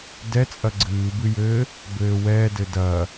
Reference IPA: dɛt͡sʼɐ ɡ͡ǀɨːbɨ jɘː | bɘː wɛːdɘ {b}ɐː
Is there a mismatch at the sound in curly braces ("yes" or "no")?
yes